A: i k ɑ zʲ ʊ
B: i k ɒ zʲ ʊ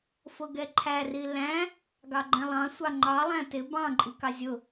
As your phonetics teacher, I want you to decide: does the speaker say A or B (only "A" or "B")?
A